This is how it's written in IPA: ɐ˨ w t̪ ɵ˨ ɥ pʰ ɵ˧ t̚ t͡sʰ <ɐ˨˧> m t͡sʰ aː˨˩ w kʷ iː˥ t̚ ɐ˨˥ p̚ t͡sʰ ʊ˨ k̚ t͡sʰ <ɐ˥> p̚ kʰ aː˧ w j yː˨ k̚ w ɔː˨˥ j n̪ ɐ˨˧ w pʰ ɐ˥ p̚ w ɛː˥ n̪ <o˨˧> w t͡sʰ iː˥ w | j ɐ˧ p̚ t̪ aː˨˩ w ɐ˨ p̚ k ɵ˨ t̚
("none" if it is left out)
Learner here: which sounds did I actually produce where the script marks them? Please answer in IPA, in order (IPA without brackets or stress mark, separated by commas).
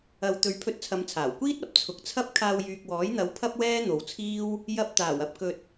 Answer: ɐ˨˧, ɐ˥, o˨˧